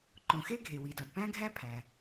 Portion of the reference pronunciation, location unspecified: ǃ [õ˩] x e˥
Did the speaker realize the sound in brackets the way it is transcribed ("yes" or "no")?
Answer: yes